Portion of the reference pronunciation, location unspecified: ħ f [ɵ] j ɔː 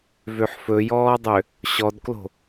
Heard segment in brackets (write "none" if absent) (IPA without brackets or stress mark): ɵ